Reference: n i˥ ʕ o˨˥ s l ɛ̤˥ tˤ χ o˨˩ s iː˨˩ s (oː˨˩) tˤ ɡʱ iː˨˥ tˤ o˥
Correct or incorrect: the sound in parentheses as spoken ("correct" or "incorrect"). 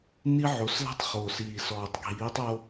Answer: incorrect